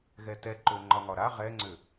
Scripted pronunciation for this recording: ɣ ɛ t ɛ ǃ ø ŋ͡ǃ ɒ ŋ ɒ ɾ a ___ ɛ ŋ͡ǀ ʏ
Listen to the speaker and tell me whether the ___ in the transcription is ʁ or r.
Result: ʁ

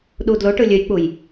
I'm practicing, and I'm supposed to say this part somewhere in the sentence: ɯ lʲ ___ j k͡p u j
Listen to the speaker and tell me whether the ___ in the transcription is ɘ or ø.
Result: ø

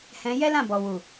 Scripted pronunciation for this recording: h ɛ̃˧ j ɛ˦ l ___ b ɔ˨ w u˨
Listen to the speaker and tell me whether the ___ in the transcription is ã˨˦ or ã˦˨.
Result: ã˦˨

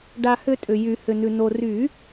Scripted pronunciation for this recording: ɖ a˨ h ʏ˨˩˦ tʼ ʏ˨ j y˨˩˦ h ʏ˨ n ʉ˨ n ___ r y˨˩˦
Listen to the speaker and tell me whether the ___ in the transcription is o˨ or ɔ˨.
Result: o˨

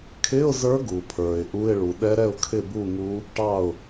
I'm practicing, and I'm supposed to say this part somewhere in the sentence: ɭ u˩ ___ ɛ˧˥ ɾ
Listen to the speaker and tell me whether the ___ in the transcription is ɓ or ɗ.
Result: ɗ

